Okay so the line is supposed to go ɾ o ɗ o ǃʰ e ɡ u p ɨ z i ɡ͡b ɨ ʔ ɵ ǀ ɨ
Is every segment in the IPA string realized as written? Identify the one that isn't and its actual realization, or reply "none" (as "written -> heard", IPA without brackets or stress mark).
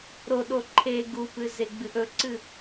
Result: i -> e